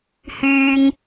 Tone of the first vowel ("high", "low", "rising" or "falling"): low